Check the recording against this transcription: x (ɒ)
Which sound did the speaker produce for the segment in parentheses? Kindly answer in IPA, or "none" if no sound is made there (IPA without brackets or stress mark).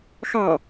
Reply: ɑ